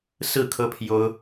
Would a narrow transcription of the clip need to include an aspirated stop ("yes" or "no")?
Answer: yes